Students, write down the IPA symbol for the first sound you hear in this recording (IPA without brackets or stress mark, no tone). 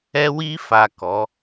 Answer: ɛ